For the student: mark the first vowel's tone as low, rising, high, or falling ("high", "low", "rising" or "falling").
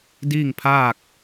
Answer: falling